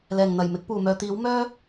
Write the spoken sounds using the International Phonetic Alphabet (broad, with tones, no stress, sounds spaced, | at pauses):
l ɛː˨˩ ŋ n̪ ɐ˨˩ j m ɪ˨˥ k̚ p uː˨˩ m œː˨ t̪ iː˨˥ w m œː˥